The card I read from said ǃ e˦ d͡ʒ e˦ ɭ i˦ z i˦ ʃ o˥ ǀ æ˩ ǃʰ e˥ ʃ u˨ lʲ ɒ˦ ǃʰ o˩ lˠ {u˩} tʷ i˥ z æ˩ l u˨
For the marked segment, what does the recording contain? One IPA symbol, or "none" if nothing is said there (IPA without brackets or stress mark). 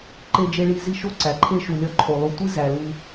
u˨